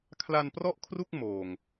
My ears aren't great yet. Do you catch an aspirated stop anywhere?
yes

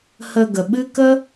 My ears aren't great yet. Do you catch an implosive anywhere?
yes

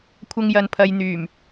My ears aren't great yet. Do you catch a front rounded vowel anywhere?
yes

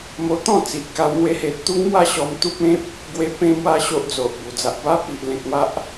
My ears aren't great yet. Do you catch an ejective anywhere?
no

